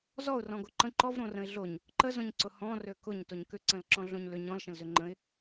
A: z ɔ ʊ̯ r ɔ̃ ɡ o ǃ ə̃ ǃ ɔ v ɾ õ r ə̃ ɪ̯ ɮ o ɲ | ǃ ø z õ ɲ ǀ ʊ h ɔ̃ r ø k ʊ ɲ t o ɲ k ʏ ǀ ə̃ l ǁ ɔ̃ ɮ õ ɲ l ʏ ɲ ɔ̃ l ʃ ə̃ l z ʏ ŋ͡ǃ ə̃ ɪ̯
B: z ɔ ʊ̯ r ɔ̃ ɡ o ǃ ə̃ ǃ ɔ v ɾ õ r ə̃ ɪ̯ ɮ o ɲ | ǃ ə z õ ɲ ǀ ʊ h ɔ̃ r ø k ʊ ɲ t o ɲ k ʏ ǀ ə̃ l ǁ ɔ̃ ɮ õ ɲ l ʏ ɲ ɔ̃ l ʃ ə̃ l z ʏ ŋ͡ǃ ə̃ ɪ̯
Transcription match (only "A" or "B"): B